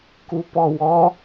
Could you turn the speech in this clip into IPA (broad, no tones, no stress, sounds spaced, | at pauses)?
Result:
k u p ɔ w ɔ